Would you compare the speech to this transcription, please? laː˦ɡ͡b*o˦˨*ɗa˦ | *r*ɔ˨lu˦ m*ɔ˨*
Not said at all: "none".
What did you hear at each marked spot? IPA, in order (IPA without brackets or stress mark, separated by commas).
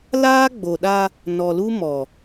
o˨, n, ɔ˨